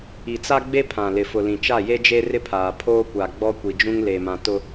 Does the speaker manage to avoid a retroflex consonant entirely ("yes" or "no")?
yes